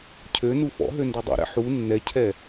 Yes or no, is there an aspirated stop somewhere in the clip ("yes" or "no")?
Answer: yes